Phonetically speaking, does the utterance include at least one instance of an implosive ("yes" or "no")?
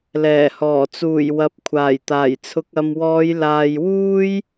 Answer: no